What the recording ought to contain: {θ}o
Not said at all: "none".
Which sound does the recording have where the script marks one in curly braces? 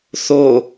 θ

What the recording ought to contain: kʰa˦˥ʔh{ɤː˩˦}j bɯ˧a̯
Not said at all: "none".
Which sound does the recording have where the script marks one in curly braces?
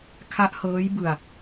ɤː˦˥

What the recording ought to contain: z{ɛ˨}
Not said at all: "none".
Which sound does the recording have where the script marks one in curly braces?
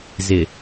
ɪ˨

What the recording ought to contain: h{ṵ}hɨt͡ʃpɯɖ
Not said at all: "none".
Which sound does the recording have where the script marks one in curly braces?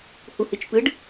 u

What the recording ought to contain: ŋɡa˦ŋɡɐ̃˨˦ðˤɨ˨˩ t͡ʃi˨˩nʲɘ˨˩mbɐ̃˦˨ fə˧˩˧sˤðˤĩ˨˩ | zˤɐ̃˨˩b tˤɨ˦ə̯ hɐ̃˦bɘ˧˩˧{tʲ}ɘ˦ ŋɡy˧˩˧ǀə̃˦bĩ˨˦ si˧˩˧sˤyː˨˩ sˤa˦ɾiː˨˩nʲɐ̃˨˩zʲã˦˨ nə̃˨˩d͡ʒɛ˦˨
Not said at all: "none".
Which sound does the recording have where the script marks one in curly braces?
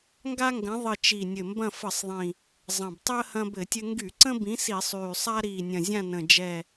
tʲ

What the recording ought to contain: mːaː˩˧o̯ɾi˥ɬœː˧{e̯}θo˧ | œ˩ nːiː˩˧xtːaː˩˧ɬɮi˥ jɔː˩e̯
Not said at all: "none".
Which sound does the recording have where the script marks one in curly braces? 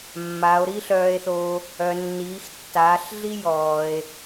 e̯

